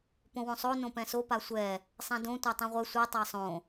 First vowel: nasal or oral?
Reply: nasal